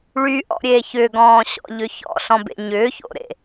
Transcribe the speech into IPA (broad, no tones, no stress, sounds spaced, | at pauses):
ɭ y ʔ ɔ̰ ɾʲ eː ç ʏ ɡ ɔ̃ː ɕ ɔ̰ ʎ ʏ ç ɔ̰ ɬ ɔ̃ b ḛ ɲ ʏː ç o̰ ɾ ḛ